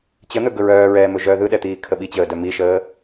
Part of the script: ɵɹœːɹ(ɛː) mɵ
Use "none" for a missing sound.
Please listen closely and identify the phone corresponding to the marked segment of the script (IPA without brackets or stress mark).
ɛː